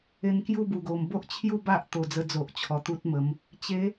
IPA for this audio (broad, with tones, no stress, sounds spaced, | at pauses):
e˧ n k j u˥˧ b u˨˩ ɡ o˨˩ m b o˦ ʔ t͡ɕʰ j u˥˧ b a˦ ʔ t̪ o˨˩ d͡z ə˧ d͡z o˨ ʔ t͡ɕʰ ɔ˨˩ t̪ u˦ t̚ m ə˨˦ m | t͡ɕ e˨˦